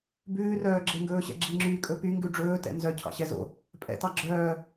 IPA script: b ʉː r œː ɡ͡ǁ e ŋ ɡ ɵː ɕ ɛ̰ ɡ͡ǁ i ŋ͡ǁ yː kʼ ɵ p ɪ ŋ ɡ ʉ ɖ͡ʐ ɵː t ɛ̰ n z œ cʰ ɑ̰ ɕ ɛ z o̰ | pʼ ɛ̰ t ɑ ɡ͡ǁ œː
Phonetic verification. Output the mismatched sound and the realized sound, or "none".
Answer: ɪ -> y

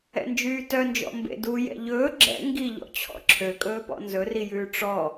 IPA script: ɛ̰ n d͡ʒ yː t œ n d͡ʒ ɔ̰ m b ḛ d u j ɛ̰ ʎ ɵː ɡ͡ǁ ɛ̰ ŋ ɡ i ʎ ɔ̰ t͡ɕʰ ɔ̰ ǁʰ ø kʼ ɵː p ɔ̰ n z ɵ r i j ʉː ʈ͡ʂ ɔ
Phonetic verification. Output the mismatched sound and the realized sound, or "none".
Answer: none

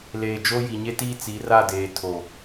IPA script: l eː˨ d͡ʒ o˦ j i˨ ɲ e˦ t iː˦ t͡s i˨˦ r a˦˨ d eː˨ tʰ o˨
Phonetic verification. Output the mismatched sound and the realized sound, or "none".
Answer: none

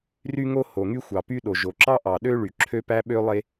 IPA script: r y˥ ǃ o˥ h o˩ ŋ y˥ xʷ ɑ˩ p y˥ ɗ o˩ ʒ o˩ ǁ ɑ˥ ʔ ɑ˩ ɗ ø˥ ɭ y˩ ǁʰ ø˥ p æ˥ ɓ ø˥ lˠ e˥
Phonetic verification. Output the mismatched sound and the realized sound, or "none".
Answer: ǃ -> ŋ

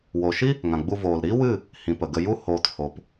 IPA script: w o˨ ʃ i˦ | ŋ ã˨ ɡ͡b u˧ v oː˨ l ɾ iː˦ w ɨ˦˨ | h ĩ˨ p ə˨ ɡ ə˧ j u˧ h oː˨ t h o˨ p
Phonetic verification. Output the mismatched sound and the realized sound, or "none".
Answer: none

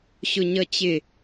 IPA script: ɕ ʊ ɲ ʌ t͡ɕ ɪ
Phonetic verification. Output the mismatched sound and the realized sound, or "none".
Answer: none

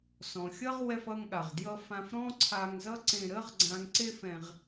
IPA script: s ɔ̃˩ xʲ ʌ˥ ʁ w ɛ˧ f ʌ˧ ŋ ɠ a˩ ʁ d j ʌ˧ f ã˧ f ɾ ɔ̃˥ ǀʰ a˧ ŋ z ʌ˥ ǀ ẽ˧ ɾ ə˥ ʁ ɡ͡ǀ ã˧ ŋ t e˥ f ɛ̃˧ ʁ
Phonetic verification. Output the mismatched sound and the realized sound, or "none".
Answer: t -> ǀ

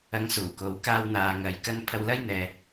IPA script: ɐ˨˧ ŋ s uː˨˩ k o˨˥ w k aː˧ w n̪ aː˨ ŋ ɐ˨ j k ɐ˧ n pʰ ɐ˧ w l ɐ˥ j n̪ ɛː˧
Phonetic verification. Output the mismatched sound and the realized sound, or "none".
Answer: none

